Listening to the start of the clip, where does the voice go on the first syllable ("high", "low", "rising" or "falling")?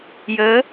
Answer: rising